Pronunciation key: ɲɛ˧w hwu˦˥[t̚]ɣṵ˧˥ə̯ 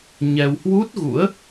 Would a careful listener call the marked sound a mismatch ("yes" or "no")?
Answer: no